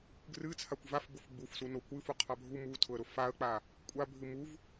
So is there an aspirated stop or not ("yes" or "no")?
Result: yes